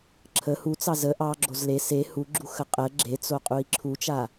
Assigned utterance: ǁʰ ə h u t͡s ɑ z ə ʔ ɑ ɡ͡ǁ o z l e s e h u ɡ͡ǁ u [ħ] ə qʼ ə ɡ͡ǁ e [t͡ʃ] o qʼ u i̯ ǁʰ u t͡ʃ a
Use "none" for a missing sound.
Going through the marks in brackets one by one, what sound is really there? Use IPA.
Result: x, t͡s

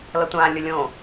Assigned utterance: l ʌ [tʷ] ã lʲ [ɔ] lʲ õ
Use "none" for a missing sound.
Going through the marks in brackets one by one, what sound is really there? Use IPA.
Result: tʷ, ʊ

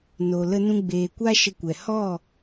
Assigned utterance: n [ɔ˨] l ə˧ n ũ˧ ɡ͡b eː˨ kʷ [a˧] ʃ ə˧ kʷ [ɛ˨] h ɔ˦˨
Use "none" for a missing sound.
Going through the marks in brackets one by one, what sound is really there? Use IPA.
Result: o˨, a˦, ɛ˨

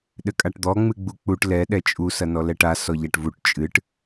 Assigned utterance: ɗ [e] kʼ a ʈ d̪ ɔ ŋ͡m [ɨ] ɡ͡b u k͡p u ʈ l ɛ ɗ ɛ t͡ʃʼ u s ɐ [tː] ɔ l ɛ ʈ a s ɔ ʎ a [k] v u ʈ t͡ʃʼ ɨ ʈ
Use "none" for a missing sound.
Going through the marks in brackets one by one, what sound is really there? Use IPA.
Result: ɘ, ɨ, n, ʈ

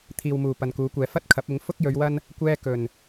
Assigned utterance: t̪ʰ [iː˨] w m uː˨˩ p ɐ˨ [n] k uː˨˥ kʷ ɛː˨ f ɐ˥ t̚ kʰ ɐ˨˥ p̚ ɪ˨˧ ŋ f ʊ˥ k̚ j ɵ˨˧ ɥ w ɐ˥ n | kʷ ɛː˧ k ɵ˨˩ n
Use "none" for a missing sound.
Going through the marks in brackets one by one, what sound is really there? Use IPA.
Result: iː˨, n

